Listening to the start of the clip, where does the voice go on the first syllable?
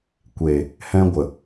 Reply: low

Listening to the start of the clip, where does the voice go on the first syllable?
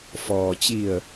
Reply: low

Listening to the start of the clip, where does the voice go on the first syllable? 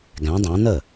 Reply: rising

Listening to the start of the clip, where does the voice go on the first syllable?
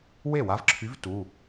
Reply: falling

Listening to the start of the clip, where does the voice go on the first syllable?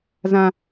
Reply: high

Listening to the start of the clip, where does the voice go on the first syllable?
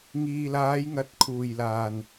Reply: low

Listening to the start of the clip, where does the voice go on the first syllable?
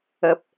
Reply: low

